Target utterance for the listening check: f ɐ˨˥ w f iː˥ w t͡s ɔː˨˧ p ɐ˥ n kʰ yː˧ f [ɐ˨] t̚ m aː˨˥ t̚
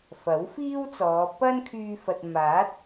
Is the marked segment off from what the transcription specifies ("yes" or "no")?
no